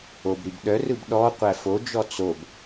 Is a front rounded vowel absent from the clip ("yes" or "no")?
no